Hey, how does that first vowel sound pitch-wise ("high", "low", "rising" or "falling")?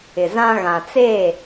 low